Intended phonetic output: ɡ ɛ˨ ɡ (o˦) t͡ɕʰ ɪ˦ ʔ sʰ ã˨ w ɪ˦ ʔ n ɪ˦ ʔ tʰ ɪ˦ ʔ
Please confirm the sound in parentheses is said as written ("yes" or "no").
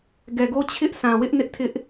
yes